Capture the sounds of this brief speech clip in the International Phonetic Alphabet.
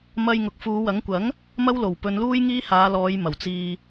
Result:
m ɐ˧ j ŋ ʊ˨ k̚ f uː˨˧ w ɐ˨˥ ŋ kʷ ɐ˨˥ ŋ | m ɐ˥ w l o˨˩ w p ɵ˨˧ n l uː˥ j ŋ iː˥ h aː˨˧ l ɔː˨˧ j m ɐ˨˩ w t͡s iː˧

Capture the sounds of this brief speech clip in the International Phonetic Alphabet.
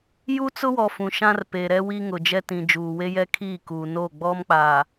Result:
j u˦ t͡s ʊ˦ w ɔ˨ f ũ˨ ʃ ã˦ r p e˨ ɾ ɛ˦ w i˦ ŋ ʊ˨ d͡ʒ ɛ˦ t ĩ˨ d͡ʒ uː˨ w e˦ j ɛ˦ kʰ iː˦˨ k uː˨ n o˦˨ ɡ͡b ɔ˦ m k͡p a˨

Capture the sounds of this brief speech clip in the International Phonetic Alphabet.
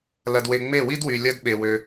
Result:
l ɐ˧ d w e˧ ŋ͡m e˦˨ w i˦ d w y˨ lʲ ɐ˧ d ɓ e˧ w ø˦

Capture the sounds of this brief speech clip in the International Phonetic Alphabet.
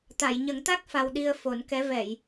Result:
t̪ a˨˩˨ j ɲ ə˨˩˦ ŋ t̪ a˦˥ k̚ f a˧ w ɗ i˧ ə̯ f o˨˩˦ n k ɛ˧˥ v ɛ˨˩˨ j

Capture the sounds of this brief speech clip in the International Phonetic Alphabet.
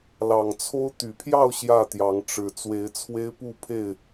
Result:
l ɑ˨˩ ŋ t͡sʰ o˦ ʊ̯ t̪ y˨˩ pʰ j ɑ˥˨ ʊ̯ ɕ j ä˥˨ t̪ j ɑ˨˦ ŋ ʈ͡ʂ ɻ̩˨˩ t͡s w e˨˦ ɪ̯ t͡sʰ w e˦ ɪ̯ p u˥˨ pʰ e˥˨ ɪ̯

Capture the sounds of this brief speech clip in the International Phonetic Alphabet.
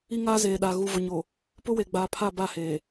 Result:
i˦ ŋ aː˦ z eː˨ ɗ a˨ ɣ u˨ v ʊ˨ ɲ o˨ | p ʊ˦ w e˨ ɡ͡b a˨ pʰ a˦˨ b a˦˨ h eː˨

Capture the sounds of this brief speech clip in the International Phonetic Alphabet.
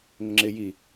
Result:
ŋ ʊ ŋ͡ǁ ɪ j i

